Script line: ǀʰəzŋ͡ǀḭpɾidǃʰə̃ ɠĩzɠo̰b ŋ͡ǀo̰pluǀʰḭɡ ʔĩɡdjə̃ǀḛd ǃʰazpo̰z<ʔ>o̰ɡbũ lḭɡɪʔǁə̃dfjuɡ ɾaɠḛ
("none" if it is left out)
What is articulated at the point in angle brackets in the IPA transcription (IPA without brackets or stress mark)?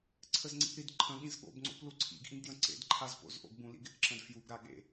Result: ʔ